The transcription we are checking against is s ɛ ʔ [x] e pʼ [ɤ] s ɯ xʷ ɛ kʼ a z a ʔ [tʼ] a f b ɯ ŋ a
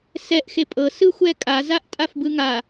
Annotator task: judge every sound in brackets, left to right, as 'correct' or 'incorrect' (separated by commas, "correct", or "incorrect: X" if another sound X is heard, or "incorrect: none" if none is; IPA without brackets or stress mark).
correct, correct, correct